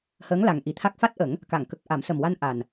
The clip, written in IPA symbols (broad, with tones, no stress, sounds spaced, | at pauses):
h əː˧˥ ŋ l a˨˩ ŋ ʔ i˨˩ t̪ʰ a˦˥ k̚ f a˦˥ t̚ ʔ ə˨˩˦ ŋ | k a˨˩˨ ŋ k ə˨˩ k̚ ʔ a˨˩˦ m s ə˨˩ m w a˧ n ʔ a˨˩ n